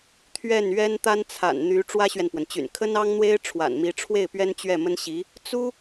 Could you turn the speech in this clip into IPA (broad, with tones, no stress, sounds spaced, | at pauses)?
t̪ʰ ɥ ɛ˥˩ n ɥ ɛ˥ n t̪ a˥ n t͡sʰ a̰˨˩ n n̪ y˧˥ ʈ͡ʂ w ä˥ ɕ ɥ ɛ˨ n p w ə˩ n t͡ɕ y̰˨˩ n kʰ ə˥ n ɑ˥ ŋ n̪ w e˥ ɪ̯ ʈ͡ʂʰ w a̰˨˩ n m i˧˥ ʈ͡ʂʰ w e˥˩ ɪ̯ p ɥ ɛ˥ n t͡ɕ ɥ ɛ˥˩ m ə˥ n ɕ i˧˥ | t͡s u˥